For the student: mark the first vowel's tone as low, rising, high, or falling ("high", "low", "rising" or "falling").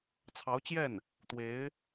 rising